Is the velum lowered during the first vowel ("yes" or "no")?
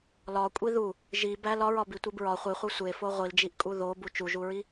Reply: no